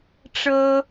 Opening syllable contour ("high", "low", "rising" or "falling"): high